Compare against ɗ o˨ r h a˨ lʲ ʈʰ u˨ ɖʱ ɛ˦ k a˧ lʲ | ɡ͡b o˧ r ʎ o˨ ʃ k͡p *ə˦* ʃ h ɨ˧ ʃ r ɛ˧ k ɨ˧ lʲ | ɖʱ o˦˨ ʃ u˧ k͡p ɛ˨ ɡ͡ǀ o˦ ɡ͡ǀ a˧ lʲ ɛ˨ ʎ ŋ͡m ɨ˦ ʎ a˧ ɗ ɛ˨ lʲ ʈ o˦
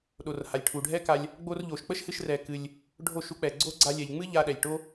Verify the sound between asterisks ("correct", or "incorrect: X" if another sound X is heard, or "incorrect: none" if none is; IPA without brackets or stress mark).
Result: correct